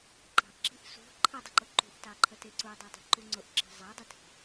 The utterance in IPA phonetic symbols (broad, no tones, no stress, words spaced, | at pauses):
ǃɑ̤ʔǁi̤ʔ sṳ ǃʰədˤəǃʊ ǃṳʔtɑǃʰəte ǀudˤɜdˤi̤ǃu ŋ͡ǀʊʔǁi̤ zˤɑdˤətʰi̤